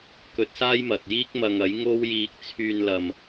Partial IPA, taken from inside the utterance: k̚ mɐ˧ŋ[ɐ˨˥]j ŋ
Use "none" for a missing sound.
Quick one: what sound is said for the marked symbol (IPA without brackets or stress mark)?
ɐ˨˥